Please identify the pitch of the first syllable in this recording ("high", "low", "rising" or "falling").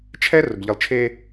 high